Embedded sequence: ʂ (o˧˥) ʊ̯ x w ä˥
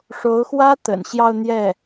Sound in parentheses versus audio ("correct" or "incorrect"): correct